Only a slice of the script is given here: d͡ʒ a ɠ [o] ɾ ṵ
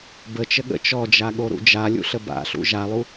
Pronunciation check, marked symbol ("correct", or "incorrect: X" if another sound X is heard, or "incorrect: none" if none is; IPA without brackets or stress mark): correct